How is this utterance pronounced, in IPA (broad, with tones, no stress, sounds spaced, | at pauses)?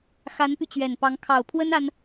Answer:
x a˧˥ n p y˧ t͡ɕ ɥ ɛ˨˩ n p ɑ˧˥ ŋ kʰ ɑ˨˩ ʊ̯ pʰ w ə˥ n a˥ n